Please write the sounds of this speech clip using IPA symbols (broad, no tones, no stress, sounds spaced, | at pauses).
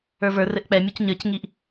ə˞ v ə˞ r ɘ ʔ k͡p ɛ mʲ u c ɲ ə˞ c ŋ i ʔ